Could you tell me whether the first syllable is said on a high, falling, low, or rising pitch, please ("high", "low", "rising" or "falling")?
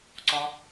high